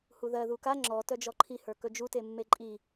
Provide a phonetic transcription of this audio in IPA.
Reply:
huðɜ ðuka ŋ͡ǁɔ tœd͡ʒɔǃʰi hə˞kɵd͡ʒu temːeǃʼi

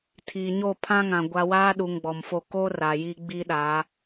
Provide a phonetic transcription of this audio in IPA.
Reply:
tʰiː˨ɲo˦˨ pʰã˦ŋã˨ ɡʷa˦ waː˦ɗu˨ŋ ɡ͡bɔ˨mfo˦˨ ko˦ ra˨ji˦ ɡ͡bi˦ɗa˨˦

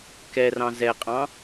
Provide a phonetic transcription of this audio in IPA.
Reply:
kɛrɑ̃ zɛqʼɑ̃

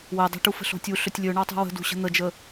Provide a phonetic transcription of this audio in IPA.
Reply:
wɛdˤɛ̤ʈufə̤ ɬo̤tʲu ɬɵtʲlʲɵɳɑ tˤṳwə̤dṳɕə̤ n̪əd͡ʒə

